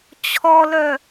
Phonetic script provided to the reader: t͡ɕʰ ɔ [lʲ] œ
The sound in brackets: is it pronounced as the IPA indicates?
no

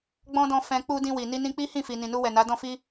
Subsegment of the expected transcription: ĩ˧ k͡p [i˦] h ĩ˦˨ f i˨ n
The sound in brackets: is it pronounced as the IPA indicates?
yes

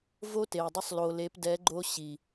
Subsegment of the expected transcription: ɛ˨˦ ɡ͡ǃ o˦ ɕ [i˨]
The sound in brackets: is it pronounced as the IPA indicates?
yes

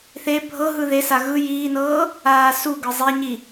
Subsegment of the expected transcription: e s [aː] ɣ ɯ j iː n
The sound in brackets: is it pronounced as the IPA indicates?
no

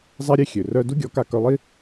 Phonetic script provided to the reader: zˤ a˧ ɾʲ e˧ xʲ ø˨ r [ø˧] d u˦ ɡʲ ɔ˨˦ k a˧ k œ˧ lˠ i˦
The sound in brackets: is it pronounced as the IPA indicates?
no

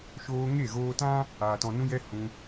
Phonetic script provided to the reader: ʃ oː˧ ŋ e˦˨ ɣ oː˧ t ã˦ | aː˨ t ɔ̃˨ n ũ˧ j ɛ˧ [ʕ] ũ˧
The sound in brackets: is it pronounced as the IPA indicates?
no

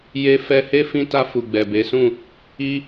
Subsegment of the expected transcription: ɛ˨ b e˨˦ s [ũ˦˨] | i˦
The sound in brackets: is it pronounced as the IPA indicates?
yes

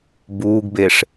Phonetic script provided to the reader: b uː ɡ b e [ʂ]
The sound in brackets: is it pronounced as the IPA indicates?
yes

